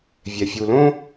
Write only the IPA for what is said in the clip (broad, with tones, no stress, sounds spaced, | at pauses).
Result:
vʲ ɛ˨ fʲ u˨ l õ˦